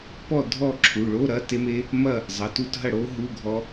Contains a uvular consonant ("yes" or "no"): no